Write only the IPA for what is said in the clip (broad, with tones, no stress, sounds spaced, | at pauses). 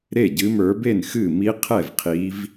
ɾ e˥˩ ɟ ɨ˨˦ m ə˞˨˦ b e˥˩ n x ɨ˥˩ m i˦˥ qʰ ɛ˥˩ v qʰ i˨˦ v